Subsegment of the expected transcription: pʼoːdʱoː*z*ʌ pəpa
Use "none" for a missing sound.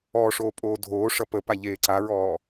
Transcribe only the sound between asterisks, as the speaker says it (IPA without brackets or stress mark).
ʂ